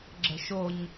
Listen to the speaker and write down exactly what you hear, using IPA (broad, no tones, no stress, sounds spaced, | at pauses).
ɡ͡ǁ ə̤ ʃ o ɲ